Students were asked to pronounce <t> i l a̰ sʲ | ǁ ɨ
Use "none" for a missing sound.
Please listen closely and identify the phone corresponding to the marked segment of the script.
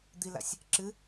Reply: d̪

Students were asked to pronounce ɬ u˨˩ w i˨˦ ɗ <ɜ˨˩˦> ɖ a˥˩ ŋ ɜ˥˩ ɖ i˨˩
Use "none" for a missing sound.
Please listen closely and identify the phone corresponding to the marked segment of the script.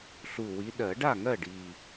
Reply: ɜ˨˩˦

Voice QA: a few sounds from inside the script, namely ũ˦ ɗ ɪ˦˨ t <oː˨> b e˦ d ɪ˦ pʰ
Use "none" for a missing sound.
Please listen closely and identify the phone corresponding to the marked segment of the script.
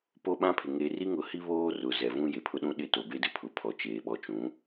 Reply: o˨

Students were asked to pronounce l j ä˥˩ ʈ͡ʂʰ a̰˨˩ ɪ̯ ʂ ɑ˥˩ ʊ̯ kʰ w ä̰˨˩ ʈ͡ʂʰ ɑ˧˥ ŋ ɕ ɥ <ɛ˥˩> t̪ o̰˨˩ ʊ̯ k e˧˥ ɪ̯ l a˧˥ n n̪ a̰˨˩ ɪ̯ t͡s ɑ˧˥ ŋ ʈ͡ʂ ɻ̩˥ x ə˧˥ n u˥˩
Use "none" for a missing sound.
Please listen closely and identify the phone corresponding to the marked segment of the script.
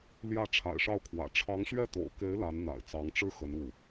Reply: ɛ˥˩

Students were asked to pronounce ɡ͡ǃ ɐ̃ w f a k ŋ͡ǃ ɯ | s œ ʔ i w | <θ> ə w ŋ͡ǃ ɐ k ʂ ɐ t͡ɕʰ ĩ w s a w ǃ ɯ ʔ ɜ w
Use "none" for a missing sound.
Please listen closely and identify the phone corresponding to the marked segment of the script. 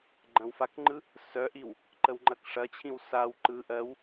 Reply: ǃ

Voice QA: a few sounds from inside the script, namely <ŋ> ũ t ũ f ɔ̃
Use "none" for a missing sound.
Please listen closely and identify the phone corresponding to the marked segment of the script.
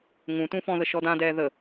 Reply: ŋ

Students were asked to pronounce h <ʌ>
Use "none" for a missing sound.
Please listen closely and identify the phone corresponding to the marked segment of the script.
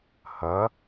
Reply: ʌ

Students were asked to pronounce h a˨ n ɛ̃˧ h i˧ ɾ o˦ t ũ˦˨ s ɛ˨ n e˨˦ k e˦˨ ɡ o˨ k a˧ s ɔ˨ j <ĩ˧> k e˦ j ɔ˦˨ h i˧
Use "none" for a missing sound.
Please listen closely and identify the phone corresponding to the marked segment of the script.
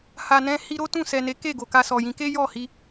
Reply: ĩ˨˦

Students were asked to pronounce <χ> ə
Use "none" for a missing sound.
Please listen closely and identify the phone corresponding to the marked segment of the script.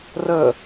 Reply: r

